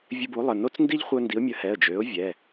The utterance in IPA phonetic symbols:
vʲ ə˦ b u˨˥ lˠ ə˩˧˩ n o˦ t͡s n d i˦ ʎ χʷ œ˦ n d i˨˥ ʊ̯ mʲ ə˨˥ h ɛ˩˧˩ ə̯ d͡ʒ ø˨˥ ʊ̯ vʲ ɛ˩˧˩

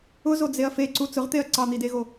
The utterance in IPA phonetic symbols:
ʊ z o d͡z e ɐ̯ f e ǀ u t͡s ʊ ʁ t̪ e ɐ̯ ǀ ɑ n̪ i d e ɣ o

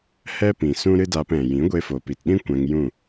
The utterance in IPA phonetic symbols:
h ɛ˦ p ĩ˨ s ũ˦ ɾ ɨ˦ d aː˧ p ɛ̃˨ j ĩ˨˦ ɡʷ e˧ f o˨ p i˨ t ɗ ĩ˦ kʷ ɛ̃˧ ŋ j ũ˦˨

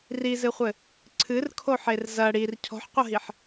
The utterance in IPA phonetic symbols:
r i z ɨ χʷ ɘ | ǀʰ ɨ r kʰ o ħ e r z ɐ ɽ i r cʰ ɔ̤ ħ qʷ ɐ ɦ i ħ

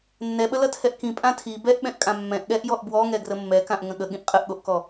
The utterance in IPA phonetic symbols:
nː ɛ ɓ ə l ɐ tʰ ɛ ʔ k ĩ pʼ ã tʰ i b ɛ ʔ ɓ ɛ̃ ʔ kʼ ã mː ɛ̃ ʔ ɠ ɛ ʔ j ɔ ʔ b w ɔ ŋ ɛ ɡ r ə mː ɛ k ã ʔ ŋ ə̃ ɠ ə ɠ ĩ ʔ qʼ ə ʔ ɠ o ʔ k ɔ

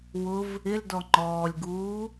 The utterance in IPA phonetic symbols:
w ʊ v | ɪ l d ɔ ŋ͡ǃ ɔː lʲ ɡ uː

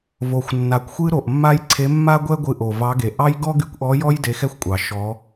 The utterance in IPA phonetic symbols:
v o˨˩ xʷ nː a˨˩ kʷ xʷ ɨ˥ ɾ o˨˩ ʔ mː a˥ j ǀʰ e˧˥ mː a˥ ɡʷ ɛ˥ ɡʷ ɨ˧˥ ʔ o˨˩ v ɑ˧˥ ɡ e˨˩ ʔ ɑ˥ j ɡ ɔ˥ ɡ y˧˥ kʷ ʔ ɔ˧˥ j ɔ˥ j d e˧˥ x ɛ˥ xʷ kʷʼ ɑ˨˩ ʃ ɔ˧˥

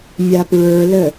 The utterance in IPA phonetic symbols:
mʲ a p ɹ ə˞ l ə

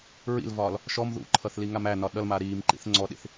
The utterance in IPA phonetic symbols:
ɹ ḭ l v ɒː l | ʃ ɔ m ð ṵ ǃʰ ʌ θ l i ŋ a m æ n ɒ ɗ ʌ l m a ɾ iː m ǃ ḭ θ ŋ͡ǀ ɔ ɗ ḭ θ

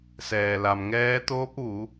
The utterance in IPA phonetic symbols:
s ɛː˩ l a˩ m ŋ ɛː˧˥ t̪ oː˧˥ p̚ ʋ u˩˧

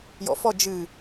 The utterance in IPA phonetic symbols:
j ɔ̰ f ɔ d͡ʒ ɨ

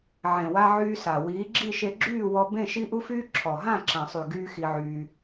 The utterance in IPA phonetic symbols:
ʕ ẽ˨ w a˧ ʕ yː˧ s a˨ w iː˨˦ ɡ͡ǁ i˦˨ ʃ e˧ ɡ͡ǁ yː˦˨ w ɔ˧ b ẽ˦˨ ʃ i˦ ʔ u˦ f yː˦ ǁʰ ɔ˨ ɦ ã˦˨ ǁ ã˨ sˤ y˨ ɡ yː˦ x i˧ ʕ yː˧

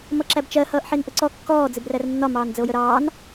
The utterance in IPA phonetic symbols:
m ʌ ǁ æ b t͡ʃ ɜ h ʌː ʔ ħ i n ʔ ə ǀ ɔ kː ɔː d͡z ɪ b r æ r nː ɒ m ɑː n d͡z ə o̯ j ə ɾ ɑː n

